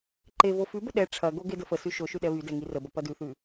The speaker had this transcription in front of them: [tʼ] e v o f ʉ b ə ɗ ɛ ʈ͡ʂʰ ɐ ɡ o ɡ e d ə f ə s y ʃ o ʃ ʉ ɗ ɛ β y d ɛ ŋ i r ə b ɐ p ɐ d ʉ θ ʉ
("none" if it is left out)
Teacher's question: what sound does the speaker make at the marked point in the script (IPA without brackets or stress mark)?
ǃ